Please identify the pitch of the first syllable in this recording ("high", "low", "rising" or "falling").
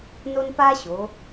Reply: high